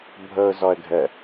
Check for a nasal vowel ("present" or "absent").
absent